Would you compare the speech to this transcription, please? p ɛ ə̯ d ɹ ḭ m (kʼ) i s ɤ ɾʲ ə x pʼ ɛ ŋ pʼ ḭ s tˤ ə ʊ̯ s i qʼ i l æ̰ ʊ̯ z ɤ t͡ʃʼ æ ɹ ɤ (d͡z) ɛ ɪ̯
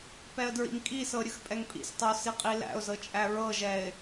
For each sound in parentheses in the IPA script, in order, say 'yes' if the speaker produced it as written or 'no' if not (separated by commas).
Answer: yes, no